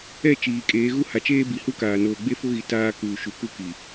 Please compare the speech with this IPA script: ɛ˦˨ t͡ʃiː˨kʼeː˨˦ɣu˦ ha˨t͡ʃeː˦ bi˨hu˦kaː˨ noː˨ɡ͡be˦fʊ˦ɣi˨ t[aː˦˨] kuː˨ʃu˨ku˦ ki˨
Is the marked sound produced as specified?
no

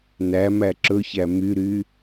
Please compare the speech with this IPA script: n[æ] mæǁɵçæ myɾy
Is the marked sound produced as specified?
yes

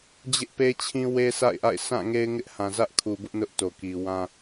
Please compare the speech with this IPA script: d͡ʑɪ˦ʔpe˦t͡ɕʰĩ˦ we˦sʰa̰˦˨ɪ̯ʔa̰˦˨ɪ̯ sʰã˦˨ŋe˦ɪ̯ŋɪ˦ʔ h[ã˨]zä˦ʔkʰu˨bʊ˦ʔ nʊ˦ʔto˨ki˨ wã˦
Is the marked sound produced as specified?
yes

